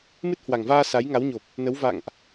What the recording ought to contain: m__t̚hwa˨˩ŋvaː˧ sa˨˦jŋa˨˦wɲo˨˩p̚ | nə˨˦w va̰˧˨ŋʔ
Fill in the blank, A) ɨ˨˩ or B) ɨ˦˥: B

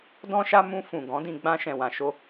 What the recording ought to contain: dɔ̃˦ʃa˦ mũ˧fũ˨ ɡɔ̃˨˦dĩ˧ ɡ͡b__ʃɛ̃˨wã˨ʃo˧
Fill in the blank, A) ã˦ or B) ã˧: B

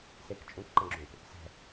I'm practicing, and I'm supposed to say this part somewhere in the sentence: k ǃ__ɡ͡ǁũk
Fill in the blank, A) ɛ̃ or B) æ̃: A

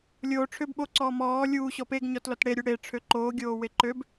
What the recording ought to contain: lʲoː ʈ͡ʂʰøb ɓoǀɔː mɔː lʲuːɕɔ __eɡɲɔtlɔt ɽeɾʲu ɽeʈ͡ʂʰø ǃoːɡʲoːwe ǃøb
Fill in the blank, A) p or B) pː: A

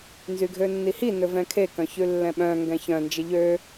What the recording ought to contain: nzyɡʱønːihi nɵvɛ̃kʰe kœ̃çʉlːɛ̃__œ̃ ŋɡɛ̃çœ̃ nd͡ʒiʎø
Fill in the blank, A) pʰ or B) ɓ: B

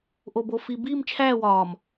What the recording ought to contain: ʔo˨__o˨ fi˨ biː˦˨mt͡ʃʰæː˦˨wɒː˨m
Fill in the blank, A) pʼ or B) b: B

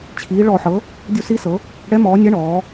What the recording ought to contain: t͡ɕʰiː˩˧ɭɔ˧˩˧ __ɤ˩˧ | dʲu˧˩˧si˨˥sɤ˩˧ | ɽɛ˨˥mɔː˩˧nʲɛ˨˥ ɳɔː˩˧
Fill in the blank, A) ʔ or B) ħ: B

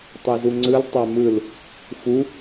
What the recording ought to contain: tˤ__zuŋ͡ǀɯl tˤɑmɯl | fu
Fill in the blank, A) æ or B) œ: B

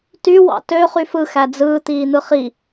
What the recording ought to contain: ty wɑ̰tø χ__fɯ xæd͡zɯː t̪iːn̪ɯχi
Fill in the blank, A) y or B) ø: A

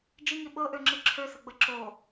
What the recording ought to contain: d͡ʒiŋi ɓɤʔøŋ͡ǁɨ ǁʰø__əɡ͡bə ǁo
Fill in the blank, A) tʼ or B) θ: B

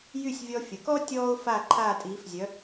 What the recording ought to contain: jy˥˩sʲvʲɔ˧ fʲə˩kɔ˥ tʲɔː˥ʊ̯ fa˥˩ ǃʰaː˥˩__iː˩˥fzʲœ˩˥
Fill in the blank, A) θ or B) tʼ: B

